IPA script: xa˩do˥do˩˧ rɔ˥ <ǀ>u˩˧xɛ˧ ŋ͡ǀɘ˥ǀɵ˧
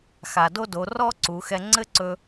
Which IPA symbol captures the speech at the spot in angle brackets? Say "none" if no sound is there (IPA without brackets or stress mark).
ǀ